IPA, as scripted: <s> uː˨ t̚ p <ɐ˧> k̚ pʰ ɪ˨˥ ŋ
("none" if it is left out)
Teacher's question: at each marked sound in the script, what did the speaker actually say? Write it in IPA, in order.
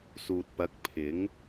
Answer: s, ɐ˨˥

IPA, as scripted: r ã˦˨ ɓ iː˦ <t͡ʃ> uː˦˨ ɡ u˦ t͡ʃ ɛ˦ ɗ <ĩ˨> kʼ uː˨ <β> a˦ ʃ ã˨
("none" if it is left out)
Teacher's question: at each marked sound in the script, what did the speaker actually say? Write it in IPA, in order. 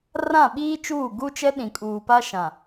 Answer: t͡ʃ, ĩ˨, p

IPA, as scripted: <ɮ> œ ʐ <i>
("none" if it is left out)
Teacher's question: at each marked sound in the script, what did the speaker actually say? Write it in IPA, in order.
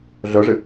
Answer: ɮ, ɪ

